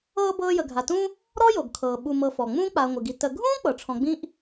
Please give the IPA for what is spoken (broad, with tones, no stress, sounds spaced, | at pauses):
ɤː˦ b ɤː˦ j ə˨ ɡʱ a˨ t ũ˥ | ɾ ɔ˥ j o˩ ɡ kʰ ɤː˩ ɓ u˨ m ɤ˨ f ɔ˩ ŋ͡m ũː˦ k͡p a˨ ɐ̯ ŋʷ ɨ˩ ɡ i˨ t ə˨ ɡʱ ũː˥ k͡p ɤ˩ ʈ͡ʂʰ ɔ̃˨ ɡ͡b ĩ˥ ʔ